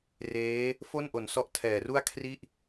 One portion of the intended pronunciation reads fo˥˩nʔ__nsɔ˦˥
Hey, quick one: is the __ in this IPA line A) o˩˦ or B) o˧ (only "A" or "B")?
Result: A